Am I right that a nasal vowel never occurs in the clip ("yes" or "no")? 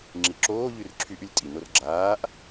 yes